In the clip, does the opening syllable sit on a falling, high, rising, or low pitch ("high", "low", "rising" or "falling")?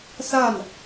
falling